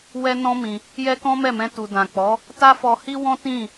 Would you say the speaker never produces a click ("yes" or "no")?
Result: yes